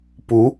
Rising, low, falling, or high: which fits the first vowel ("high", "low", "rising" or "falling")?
rising